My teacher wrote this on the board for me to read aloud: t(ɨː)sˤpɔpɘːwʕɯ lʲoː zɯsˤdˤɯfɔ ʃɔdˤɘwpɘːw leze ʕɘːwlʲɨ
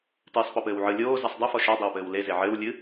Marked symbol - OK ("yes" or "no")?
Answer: yes